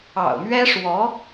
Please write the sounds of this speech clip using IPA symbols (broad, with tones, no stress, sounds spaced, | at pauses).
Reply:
ɑ̰˨˩ ʊ̯ m ɥ ɛ˥ ʂ w ɔ˧˥